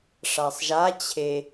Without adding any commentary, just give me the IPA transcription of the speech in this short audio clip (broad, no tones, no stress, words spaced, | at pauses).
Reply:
ʂasˤʒa t͡ɕʰe